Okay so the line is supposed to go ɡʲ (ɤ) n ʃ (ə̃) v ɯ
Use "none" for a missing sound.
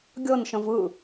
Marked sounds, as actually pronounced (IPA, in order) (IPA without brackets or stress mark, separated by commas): ɤ, ə̃